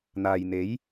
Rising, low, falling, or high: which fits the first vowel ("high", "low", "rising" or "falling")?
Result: low